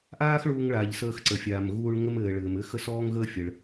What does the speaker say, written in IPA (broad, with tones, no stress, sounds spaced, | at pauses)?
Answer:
ʔ aː˥ x ɭ uː˧ ŋ ɭ aː˩ ʎ s əː˧ x ǀ ə˩ fʲ aː˩ m ɣ uː˧ ɭ ŋ ə˧ m ɘː˩ ɭ ɘː˩ m ɘː˧ x ə˧ s ɔː˧ ŋ ɣ əː˧ fʲ ə˩ ɭ